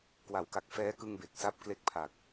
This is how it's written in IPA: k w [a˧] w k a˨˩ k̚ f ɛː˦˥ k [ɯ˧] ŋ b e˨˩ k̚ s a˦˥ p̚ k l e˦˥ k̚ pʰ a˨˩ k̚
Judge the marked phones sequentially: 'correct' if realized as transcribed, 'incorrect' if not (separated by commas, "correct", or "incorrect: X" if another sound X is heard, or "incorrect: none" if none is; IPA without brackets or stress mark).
incorrect: a˩˦, correct